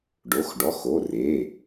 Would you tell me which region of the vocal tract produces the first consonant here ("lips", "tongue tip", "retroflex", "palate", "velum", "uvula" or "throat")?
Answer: retroflex